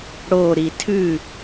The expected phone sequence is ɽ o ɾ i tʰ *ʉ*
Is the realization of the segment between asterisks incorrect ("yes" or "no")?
no